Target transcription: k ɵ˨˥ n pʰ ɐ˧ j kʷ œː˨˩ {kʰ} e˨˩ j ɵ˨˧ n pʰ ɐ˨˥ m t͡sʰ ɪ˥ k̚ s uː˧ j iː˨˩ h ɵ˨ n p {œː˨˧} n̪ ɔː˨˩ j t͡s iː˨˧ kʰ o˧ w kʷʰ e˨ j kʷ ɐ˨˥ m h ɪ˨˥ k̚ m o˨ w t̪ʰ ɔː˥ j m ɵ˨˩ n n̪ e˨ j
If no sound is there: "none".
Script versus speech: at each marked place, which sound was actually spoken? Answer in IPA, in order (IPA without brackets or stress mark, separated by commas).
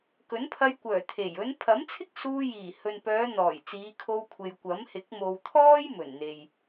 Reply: t̪ʰ, œː˨˧